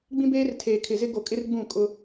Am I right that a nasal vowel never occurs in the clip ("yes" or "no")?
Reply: no